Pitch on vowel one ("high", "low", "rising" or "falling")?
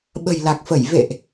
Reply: low